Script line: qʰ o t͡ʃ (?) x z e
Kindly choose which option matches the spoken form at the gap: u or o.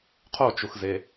u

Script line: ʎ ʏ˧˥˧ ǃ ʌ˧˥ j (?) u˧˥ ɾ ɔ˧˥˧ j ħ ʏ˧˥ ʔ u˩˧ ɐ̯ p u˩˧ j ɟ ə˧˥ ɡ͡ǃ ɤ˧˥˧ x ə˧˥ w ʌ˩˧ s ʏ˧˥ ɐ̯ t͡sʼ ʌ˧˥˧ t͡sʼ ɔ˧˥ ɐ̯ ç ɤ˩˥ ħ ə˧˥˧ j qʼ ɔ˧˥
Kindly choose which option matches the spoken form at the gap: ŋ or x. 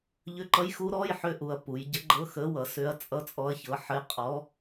x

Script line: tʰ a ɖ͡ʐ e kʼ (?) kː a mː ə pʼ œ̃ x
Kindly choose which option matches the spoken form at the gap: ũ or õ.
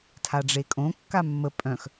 õ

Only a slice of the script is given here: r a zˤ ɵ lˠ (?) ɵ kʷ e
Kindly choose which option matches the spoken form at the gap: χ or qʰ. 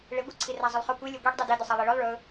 χ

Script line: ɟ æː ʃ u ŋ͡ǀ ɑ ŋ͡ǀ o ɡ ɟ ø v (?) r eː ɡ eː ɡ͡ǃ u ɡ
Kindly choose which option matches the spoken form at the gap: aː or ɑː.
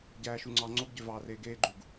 ɑː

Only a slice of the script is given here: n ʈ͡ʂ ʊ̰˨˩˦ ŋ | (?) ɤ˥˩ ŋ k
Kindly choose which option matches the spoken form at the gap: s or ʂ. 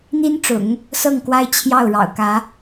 s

